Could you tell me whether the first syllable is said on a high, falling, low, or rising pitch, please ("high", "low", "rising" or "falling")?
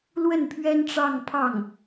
falling